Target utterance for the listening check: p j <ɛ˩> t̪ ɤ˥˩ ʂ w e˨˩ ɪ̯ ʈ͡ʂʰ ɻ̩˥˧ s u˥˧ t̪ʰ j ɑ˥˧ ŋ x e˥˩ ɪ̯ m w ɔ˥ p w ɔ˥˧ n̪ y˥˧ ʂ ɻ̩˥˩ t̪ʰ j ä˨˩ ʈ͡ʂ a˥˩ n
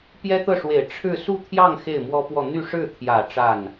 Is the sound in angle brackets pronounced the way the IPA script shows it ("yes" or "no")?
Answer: no